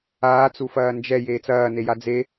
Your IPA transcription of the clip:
aːt͡sufɐː nd͡ʒɛ jeːt͡sɐːneja d͡ze

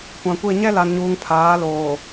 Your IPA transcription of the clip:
kʷã˨kʷe˦˨ ɲɛ˦la˨nɲuː˨ŋ pʰaː˨˦loː˨

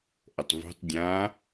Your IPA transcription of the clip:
ʔətˤvṳtˤ dʲã

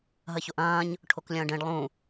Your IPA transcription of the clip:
ɦɐçoʔɐ̃ːɲ | ʈʰoklʲɐ̃ːɖẽɖ lˠũ

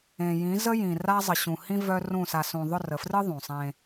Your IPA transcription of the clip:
ẽ˨jĩ˨˦zə˦jĩ˨ ra˦ zˤə˨ɕũ˨hĩ˦ vœ˦rũ˦˨ sa˨sũ˨ ðˤʊ˦˨rə˨frɨ˦ ðˤũ˨sˤẽ˦

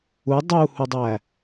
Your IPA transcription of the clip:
u dˤuhudˤæ

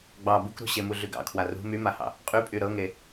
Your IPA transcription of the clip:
ɡ͡bɑ bukɾṳɕemu ɮyɡɑ̰ kʰwarṳ mymahɑ̰ | qʼypʼy ɾɤŋe

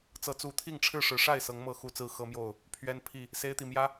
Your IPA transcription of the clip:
t͡sɤ˨˦t͡su˨˦t̪ʰi˥˨ŋ ʈ͡ʂʰɻ̩˥˨ʂɻ̩˨˦ ʂa˥˨ɪ̯sɤ˨˦ŋmɤ˨˦ xu˨˩t͡sɹ̩˥˨ xɤ˦mjo˥˨ʊ̯ | pʰɥɛ˦npʰi˥˨ | se˦ɪ̯t̪i˨ mjä˦

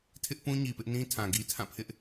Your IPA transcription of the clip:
tʰɪ˦ʔpũ˦ ɲi˨pɪ˦ʔnĩ˦ tʰã˨ɡi˦ tʰã˦˨pʰɪ˦ʔ

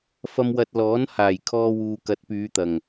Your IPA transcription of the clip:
fɐ˧mwɐ˧t̚lɔː˨˥n haː˨˩jkʰɔː˧wuː˨kɐ˨˥t̚ pyː˨˧t̪ɐ˨˩ŋ

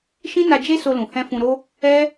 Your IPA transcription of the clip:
ʃĩ˦na˧d͡ʒe˦ so˧lũ˨hɛ̃˧ fũ˧ɾo˦ | ɛ˦

